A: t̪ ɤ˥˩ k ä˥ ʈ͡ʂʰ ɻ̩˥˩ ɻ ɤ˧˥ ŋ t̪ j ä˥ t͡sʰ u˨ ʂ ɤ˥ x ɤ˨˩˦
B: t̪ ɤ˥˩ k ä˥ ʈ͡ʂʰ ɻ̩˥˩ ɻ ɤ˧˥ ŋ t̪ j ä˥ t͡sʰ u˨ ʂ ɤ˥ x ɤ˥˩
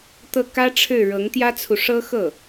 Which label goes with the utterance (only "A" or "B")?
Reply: B